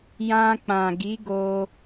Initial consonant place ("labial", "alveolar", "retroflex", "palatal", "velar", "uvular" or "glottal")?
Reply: palatal